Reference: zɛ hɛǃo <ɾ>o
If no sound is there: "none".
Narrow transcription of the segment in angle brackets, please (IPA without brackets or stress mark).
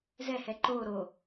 ɾ